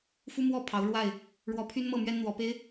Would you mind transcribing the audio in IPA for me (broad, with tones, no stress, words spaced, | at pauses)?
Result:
fu˦mwɔ˥˨ pʰɑ˨˦ʊ̯ ɻwa˥˨ɪ̯ | ɻwɔ˨˦pʰy˦n mɤ˥˨mɥɛ˦nn̪wɔ˨˦ pe˦ɪ̯